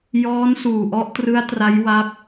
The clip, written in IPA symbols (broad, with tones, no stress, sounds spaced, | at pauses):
j ɔː˦˥ n s uː˨˩ ʔ ɔ˦˥ ʔ t r ɯ˦˥ a̯ t r a˦˥ j w a˦˥ p̚